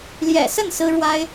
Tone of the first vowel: low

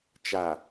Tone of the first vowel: low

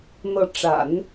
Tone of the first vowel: rising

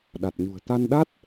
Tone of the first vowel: low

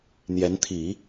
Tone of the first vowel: rising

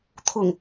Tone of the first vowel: low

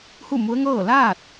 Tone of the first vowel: falling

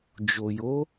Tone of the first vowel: low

